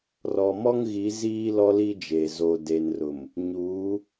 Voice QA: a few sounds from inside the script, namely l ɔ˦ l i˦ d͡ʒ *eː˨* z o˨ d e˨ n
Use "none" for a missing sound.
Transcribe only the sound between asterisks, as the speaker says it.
eː˨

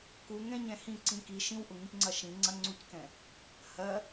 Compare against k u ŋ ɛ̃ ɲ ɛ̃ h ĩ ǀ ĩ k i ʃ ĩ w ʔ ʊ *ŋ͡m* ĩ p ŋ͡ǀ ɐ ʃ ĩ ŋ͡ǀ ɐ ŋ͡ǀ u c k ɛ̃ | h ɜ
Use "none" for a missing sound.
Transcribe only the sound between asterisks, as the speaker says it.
ŋ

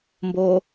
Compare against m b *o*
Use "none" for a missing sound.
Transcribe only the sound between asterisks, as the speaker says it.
o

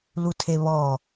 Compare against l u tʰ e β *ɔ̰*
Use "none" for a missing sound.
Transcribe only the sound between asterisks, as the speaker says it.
ɔ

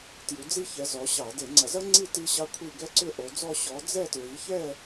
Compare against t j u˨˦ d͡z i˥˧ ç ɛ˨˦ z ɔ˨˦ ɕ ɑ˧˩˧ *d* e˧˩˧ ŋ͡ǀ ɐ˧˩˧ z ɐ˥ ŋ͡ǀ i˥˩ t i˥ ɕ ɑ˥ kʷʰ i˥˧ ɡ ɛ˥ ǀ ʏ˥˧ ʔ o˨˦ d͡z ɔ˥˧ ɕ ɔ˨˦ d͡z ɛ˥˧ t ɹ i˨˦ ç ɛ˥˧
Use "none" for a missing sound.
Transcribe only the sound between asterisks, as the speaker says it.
d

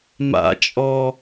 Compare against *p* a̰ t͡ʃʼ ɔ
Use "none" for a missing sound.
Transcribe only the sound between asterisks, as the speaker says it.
m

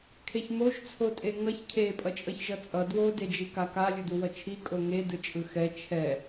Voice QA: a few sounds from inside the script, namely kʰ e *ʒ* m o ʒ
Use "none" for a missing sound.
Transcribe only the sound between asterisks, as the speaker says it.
ç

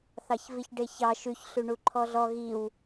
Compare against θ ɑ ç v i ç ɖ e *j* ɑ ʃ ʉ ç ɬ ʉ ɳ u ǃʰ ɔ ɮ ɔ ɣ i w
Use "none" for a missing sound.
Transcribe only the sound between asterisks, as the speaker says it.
ç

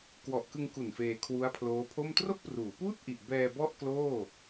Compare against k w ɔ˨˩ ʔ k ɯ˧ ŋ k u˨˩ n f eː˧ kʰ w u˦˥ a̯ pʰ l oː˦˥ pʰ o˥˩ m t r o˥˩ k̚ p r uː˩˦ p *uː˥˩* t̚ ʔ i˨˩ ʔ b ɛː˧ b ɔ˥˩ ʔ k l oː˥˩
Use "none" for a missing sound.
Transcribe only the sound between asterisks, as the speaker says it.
uː˥˩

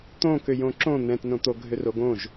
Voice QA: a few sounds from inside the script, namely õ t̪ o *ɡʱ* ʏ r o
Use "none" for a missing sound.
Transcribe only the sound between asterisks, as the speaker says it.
ɡʱ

